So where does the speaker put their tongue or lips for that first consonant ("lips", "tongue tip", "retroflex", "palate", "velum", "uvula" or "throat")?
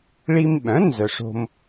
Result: retroflex